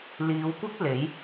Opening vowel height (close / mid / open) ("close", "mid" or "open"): close